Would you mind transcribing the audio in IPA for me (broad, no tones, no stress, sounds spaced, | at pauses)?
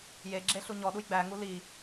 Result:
j e ɡ͡ǁ e ɬ u ɲ ɔ ɗ u j ɡ͡b æ ŋ u l i